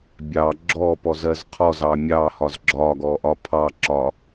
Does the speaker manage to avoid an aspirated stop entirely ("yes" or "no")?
no